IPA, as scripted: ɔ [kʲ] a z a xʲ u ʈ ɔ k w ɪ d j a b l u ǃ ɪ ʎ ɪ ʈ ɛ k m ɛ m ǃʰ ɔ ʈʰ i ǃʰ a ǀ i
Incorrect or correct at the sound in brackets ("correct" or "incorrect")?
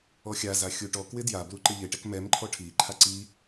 incorrect